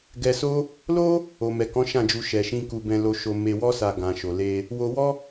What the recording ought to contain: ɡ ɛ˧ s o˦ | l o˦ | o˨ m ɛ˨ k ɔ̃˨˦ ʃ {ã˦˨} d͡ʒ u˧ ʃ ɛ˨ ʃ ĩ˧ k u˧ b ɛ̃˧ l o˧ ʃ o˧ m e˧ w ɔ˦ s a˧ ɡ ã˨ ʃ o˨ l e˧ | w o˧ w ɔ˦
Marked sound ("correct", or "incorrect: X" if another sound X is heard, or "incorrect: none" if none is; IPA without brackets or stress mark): correct